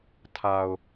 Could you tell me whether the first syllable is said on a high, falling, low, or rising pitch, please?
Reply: low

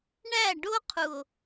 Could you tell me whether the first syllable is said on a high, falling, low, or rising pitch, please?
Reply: falling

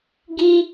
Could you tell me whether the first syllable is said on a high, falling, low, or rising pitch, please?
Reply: high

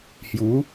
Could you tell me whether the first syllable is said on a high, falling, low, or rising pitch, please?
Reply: rising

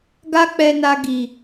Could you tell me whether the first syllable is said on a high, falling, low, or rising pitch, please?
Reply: high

